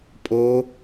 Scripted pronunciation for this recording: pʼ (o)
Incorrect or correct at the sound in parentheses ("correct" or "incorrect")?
correct